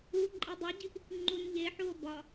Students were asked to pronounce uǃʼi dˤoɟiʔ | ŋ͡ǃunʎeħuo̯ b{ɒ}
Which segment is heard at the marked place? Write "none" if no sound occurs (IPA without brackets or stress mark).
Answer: ɒ